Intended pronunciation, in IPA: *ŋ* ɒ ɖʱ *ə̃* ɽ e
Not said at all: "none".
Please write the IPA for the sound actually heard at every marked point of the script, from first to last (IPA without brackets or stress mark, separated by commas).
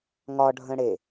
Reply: ŋ, ə̃